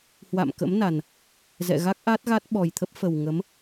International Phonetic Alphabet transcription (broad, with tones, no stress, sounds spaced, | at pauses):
h w a̰˧˨ m k ə̰˧˥ m n a˨˩ n | z ɛ̰˧˨ ɣ a˦˥ k̚ ʔ a˦˥ t̚ ɣ a˦˥ t̚ ɓ ɔ˨˩ j t̪ʰ ə˦˥ p̚ f ə˨˩ w ŋ ə˨˦ m